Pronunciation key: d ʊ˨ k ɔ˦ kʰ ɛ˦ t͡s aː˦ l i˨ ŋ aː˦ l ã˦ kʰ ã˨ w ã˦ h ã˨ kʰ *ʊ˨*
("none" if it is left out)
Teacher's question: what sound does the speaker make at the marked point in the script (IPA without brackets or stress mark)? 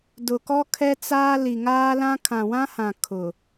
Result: ʊ˨